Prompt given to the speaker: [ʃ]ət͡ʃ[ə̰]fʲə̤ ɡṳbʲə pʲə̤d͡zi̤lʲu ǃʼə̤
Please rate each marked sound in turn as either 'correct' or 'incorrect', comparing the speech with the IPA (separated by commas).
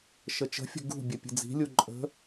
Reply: correct, incorrect